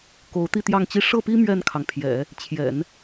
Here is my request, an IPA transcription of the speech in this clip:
k o˧˥ ʊ̯ t̪ i˥˧ t̪ j ɑ˥˧ ŋ t͡ɕ i˥˧ ʂ ɤ˥˩ p i˥ m ɥ ɛ˥˩ n kʰ ɑ˩ ŋ pʰ j ɛ̰˨˩˦ | t͡ɕʰ j ɛ̰˨˩˦ n

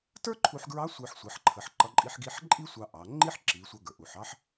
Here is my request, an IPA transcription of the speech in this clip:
t ə˞˥ ǃʰ u˧ ħ ɡ ɹ ɑ˧˥ sʷ ə˞˧ ħ sʷ ʌ˩˧ ħ ǃʰ ə˩˧ ħ ǃ ʌ˧˥ ǃʼ i˧˥ ħ ɡ i˧˥ ħ ǃʼ i˥ sʷ ɑ˧ ʔ ɑ˩˧ ŋ͡ǃ i˥ ħ ǁ i˩˧ sʷ ʌ˧ ɡ ə˞˩ ʔ u˩ ħ ɑ˥ ħ

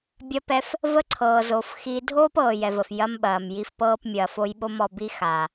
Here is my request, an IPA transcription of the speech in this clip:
bʲ ɐ˧ p ɛ˧ f | v ə˦ ǀʰ ɤː˨ z o˨ f x i˧ dʱ oː˦ p ɤː˨ j ɛ˨ v ə˨ f j ɐ˧ m ɓ ɐː˨ m j i˨ f p ɤː˧ p mʲ ɐː˨ f o˧ j ɓ o˧ m ɔ˨ b i˧ x a˨

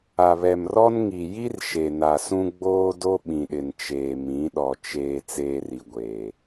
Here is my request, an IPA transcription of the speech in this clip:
a˨ β ɛ˨ m r ɔ˦ n ŋ i˨ j i˦ r ʃ e˨ n a˨ s ũ˦ ɡ͡b oː˦ d o˦ ɓ ĩ˨ ɗ ɪ˨ n t͡ʃ eː˨ m ĩ˨˦ ɗ ɔ˨ t͡ʃ eː˨ t͡s eː˦ r i˨ ɡʷ eː˨

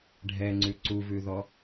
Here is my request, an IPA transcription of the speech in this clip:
ɖʱ ɛ ŋ͡ǀ ʉ ǀ u v ʉ ð ɔ

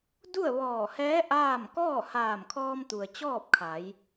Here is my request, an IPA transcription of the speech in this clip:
d u˥˨ ə̯ ʋ ɔː˧˩ h ɛː˧˥ ʔ aː˥˨ m k ɔː˥˨ h aː˧˩ m kʰ ɔː˧ m t̪ u˩ ə̯ t͡ɕ ɔː˥˨ p̚ kʰ a˩˧ j

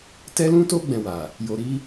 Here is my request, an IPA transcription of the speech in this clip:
t ɛ˦ l ũ˦ t o˦ ɡ͡b ɛ̃˧ w a˨ | j o˧ ɾ i˦

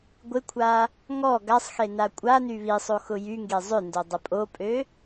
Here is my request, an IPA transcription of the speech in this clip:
ɡʷ ɪ kʷʰ a | ŋ ɔ ɡ a sˤ x e n a kʷʼ a n y β i sˤ o x ʊ j y ŋ ɡ e zˤ ʏ n d o dˤ ə pʼ o pʼ ø

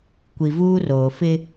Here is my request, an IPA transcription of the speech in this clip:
kʷ i˨ v uː˦ r oː˨ f ɪ˦

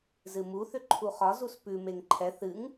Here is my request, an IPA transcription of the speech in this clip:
z ɨ m u θ ʏ ǃʰ u χ ɒ z u s p ʉ m e ŋ ǃʰ ɛ θ ɨ ŋ

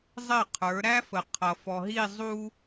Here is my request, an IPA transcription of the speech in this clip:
zˤ ɪ˦˨ qʰ ə˞˨˦ ɾ æ˦ f ə˨ qʰ ʌ˨ f ɔ˨ ɦ i˦˨ zˤ u˦

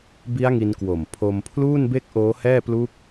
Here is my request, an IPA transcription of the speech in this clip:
b i˦˥ a̯ ŋ i˧ n k w o˨˩ m pʰ o˧ m pʰ l uː˥˩ n b e˥˩ k̚ ʔ oː˦˥ h ɛː˥˩ p l u˦˥ k̚

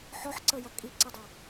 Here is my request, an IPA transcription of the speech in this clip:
ħ ɔ ħ ǀ ə j ɐ kʼ i ǀ ə dˤ ʌ

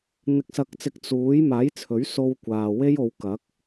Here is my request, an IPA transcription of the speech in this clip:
n̪ ɪ˨˥ k̚ s ɐ˨˥ k̚ t͡s ɪ˨˥ k̚ t͡s uː˨˥ j m aː˨˥ j t͡sʰ ɵ˨˥ ɥ s o˧ w kʷ aː˨ w e˥ j o˨˧ w k ɐ˨˥ k̚

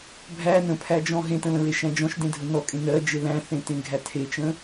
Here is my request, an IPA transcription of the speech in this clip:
bʱ æ n ə̃ pʰ æ d͡ʒ ɔ̃ ɦ ẽ t ə̃ l ə̃ ɹ e ʃ æ̃ d͡ʒ ɔ̃ ʃ d ẽ dʱ ə n ɔ kʼ ẽ n ɜ d͡ʒ e l æ̃ θ ẽ t ẽ ɡʱ æ tʰ e t͡ʃ ə̃

